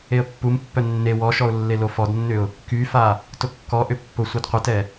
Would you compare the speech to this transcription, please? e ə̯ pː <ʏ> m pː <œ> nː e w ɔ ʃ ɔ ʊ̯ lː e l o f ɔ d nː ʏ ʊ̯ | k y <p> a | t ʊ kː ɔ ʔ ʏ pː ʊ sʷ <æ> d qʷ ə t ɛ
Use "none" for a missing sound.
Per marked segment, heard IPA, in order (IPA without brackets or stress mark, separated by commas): u, œ, f, ɛ